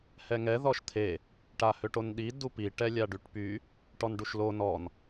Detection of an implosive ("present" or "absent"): present